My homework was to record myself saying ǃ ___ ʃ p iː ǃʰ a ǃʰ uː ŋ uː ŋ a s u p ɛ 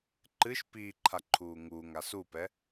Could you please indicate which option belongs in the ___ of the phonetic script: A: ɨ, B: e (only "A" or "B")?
A